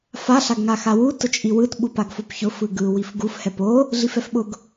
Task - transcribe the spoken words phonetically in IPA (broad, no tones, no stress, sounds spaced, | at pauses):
f a ɬ a ɡ ŋ a x a w u t ʊ t͡ʃʼ i w ɯ t ɓ u p a ɡ f o p ç ʊ f ɯ ɡ ɯ w i f ɡ u f h ɛ p o | ɮ i f ɛ f ɓ ʊ ɡ